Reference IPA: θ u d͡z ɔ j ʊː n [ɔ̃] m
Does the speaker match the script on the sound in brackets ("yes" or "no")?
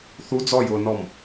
no